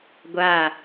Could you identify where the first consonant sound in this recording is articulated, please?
velar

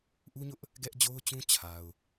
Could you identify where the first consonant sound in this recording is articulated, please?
glottal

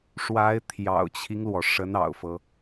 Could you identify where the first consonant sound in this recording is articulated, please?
retroflex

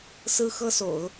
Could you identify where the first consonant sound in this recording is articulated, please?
alveolar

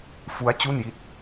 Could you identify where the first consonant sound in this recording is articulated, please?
labial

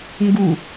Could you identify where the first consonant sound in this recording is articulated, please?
velar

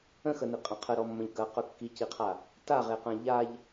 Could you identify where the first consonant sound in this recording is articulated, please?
velar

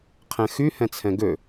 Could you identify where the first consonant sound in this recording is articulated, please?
uvular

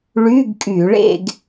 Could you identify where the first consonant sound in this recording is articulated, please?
retroflex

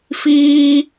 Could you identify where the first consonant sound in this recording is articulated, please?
labial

